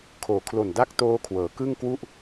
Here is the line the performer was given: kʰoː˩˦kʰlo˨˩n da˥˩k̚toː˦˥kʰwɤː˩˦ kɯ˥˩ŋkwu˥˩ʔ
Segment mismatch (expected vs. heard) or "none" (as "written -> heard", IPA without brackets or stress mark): none